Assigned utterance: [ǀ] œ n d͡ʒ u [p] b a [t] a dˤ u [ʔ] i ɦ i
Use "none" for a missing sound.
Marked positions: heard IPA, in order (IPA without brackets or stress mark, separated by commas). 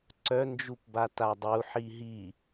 ǀ, p, t, ħ